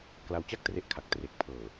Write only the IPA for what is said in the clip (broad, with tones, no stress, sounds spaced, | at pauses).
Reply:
k l a˧ w t͡ɕ a˥˩ k̚ t r e˦˥ ʔ kʰ a˨˩ k̚ t r e˨˩ k̚ pʰ ɤː˨˩